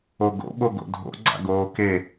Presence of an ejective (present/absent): absent